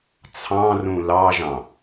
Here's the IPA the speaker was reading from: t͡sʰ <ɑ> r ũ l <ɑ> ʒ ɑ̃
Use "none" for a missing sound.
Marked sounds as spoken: ɑ̃, ɑ

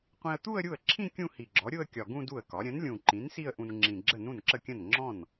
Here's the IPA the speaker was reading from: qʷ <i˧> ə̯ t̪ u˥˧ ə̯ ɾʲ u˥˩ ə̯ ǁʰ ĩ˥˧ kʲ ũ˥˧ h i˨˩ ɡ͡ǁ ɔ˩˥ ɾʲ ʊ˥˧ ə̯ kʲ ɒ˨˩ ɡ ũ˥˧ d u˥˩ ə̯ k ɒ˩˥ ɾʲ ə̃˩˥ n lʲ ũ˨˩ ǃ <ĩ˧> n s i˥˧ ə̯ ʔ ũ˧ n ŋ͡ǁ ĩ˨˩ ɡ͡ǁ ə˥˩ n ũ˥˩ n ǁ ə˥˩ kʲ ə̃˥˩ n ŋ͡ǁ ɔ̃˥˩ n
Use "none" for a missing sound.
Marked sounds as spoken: ĩ˧, ĩ˩˥

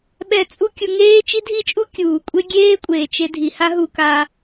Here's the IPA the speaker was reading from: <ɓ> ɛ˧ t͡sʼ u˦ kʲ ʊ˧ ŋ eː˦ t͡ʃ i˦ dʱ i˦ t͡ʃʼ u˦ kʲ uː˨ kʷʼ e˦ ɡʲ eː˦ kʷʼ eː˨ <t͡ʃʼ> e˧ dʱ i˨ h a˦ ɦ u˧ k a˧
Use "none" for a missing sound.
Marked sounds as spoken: ɓ, t͡ʃ

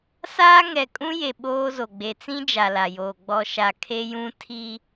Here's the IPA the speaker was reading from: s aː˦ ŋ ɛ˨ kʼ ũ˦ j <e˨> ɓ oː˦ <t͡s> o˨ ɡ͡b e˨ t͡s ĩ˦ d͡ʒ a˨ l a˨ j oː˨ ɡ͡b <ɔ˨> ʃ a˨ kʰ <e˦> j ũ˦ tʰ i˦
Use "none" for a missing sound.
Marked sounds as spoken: e˨, z, ɔ˨, e˦

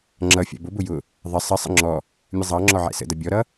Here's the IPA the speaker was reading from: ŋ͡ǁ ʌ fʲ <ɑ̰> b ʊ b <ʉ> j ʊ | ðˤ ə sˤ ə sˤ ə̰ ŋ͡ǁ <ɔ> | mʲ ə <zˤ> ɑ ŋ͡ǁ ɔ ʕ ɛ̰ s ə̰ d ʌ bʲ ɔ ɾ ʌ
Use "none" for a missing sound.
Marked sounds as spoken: ɑ̰, ʊ, ɔ, zˤ

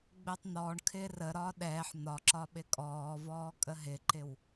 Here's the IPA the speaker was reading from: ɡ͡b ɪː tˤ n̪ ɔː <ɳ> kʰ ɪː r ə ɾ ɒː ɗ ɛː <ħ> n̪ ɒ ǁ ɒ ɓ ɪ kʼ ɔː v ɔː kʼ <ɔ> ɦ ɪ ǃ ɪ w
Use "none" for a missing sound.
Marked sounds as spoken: ɳ, ħ, ə

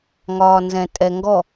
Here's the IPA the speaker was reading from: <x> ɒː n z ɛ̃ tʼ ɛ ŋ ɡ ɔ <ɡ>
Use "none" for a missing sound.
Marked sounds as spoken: ŋ, none

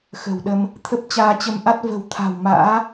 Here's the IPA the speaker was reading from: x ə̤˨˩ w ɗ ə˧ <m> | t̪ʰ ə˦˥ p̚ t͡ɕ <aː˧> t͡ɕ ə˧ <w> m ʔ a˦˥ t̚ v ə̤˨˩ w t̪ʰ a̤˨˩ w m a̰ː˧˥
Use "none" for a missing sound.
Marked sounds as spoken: m, aː˧, none

